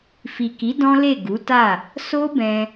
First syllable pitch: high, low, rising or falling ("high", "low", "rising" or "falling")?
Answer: low